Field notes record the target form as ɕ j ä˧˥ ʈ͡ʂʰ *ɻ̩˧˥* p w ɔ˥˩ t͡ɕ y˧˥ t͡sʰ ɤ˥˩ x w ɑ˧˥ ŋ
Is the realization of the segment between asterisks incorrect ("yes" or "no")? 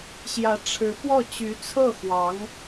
no